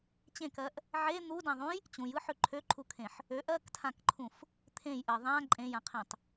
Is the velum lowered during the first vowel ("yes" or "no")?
yes